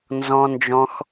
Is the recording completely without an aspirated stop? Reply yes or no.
yes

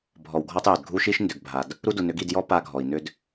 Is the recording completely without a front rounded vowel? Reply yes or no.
no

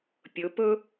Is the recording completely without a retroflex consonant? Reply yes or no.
yes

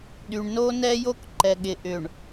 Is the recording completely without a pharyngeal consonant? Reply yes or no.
yes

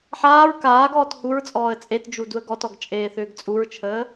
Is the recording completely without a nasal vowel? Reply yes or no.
yes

